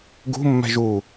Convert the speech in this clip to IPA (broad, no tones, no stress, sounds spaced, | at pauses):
ɡ ṳ mː ɛ̤ ʒ u